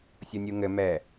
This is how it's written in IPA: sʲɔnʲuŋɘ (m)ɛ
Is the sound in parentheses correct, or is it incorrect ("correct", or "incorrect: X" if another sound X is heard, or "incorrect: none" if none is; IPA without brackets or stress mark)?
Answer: correct